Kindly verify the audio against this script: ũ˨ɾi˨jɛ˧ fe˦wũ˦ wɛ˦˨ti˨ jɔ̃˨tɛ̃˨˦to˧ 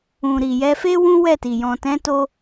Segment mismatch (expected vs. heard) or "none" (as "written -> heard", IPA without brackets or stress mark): none